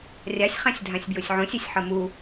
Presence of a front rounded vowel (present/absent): absent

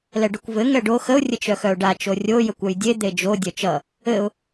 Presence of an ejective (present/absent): absent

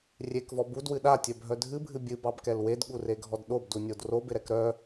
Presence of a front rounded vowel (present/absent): present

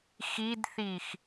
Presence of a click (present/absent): absent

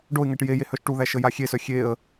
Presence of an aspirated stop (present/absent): absent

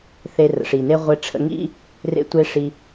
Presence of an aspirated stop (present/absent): present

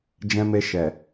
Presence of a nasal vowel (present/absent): present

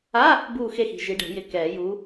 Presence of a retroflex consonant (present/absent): present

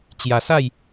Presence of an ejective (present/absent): absent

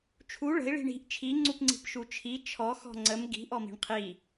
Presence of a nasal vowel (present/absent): absent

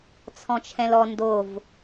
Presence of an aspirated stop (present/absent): present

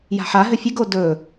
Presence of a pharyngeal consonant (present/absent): present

